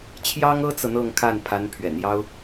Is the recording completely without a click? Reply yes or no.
yes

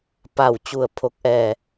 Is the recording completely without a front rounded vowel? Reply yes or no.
yes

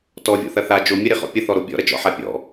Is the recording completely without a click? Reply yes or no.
yes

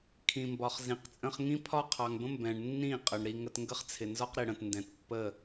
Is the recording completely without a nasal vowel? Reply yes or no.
no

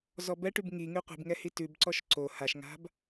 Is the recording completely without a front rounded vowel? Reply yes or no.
no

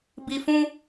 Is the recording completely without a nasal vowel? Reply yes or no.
no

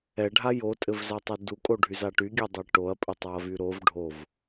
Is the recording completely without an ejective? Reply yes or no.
no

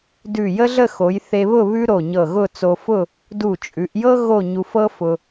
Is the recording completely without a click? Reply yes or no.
yes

